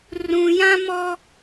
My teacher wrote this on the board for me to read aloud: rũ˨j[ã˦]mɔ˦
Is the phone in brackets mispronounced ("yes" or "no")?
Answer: no